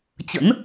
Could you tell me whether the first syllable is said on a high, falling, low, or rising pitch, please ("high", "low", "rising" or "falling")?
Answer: rising